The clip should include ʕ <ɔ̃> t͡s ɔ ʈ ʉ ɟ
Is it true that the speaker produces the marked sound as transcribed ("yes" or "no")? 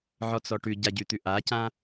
no